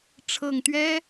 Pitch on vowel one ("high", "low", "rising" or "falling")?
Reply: low